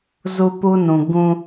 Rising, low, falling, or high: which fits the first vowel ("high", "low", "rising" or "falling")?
high